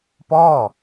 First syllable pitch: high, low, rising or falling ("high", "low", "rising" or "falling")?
falling